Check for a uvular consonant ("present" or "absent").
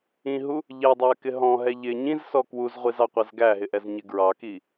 present